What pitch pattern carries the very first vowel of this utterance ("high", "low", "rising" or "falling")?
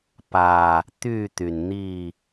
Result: low